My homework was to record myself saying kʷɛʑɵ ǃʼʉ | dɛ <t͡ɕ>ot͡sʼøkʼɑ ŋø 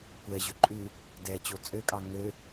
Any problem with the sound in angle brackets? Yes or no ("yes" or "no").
no